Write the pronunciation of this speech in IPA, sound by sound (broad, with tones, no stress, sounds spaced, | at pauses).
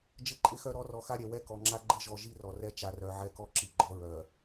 d͡ʒ ɘ˦ ǃʼ ɪ˦ x œ˦ ɾ ɔ˨˦ r ɔ˨ x a˦ ɾʲ ɛ˨ w ɛ˦ k ɔ˨ ŋ͡ǁ a˦ ɡ͡ǃ ɘ˦ ʒ ɔ˨ ʒ i˦ r ɔ˨ r ɛ˦ t͡ʃ a˨ r œ˨ ʕ ɛ˦ k ɔ˦ ǁ i˨ ɡ͡ǃ ɔ˦ ɹ œ˨